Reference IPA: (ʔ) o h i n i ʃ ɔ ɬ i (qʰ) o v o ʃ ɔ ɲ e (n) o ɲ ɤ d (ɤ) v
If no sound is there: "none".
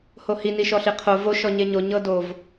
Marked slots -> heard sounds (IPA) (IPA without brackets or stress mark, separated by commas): h, qʰ, ɲ, o